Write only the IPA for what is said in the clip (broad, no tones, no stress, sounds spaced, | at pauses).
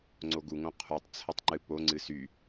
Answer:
ŋ͡ǀ o ɡ u ŋ õ qʰ u tˤ t͡sʰ ə tˤ ŋ͡ǃ ɨ p o ŋ͡ǀ ɨ s y